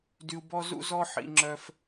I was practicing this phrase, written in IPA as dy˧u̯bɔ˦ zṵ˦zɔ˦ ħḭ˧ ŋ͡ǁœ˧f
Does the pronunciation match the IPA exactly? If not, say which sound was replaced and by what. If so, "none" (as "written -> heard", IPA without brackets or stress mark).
none